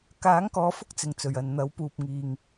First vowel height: low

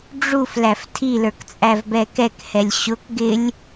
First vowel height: high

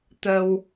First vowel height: mid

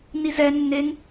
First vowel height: high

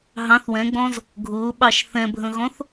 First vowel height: low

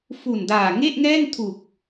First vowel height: high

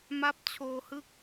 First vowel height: low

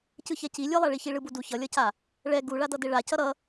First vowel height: high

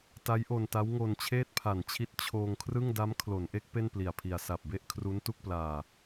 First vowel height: low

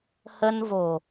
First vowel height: mid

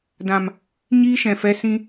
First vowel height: low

